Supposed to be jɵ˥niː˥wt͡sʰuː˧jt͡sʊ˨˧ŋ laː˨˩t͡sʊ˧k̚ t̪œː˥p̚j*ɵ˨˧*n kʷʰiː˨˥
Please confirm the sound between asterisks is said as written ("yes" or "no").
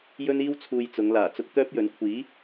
yes